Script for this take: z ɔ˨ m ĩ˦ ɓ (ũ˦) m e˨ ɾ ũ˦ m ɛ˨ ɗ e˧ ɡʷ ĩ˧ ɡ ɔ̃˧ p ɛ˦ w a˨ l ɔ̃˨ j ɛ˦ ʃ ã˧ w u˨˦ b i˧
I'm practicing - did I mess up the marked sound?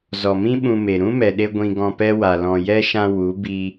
yes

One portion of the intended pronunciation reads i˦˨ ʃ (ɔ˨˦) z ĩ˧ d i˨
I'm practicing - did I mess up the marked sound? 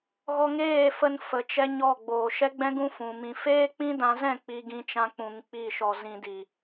yes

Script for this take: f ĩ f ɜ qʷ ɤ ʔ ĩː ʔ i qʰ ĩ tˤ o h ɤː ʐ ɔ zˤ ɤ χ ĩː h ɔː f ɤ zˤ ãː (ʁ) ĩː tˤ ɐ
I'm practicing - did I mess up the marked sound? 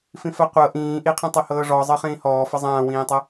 yes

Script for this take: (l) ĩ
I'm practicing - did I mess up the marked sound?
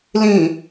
no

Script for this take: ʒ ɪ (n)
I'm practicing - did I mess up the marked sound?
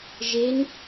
no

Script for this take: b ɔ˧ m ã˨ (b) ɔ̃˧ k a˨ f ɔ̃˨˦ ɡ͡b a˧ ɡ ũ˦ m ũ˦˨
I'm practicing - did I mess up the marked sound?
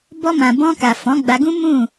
no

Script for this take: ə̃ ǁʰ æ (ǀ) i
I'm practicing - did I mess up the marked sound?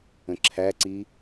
no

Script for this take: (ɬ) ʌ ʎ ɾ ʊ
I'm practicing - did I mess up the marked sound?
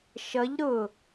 yes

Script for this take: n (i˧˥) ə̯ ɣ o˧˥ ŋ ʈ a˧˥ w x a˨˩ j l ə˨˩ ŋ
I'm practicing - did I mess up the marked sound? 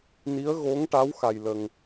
no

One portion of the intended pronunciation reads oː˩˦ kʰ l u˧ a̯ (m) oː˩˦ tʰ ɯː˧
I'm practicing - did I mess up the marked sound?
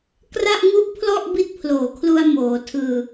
no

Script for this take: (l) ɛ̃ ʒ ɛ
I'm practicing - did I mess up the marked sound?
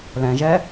no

